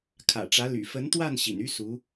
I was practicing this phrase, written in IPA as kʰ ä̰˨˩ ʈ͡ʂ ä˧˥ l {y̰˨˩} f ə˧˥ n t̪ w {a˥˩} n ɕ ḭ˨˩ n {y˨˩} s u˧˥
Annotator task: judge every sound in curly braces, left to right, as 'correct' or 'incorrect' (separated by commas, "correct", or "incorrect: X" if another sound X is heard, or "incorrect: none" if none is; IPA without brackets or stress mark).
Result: correct, correct, incorrect: y˥